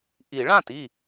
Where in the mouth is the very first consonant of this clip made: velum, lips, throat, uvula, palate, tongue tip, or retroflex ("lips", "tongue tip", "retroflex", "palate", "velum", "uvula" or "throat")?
throat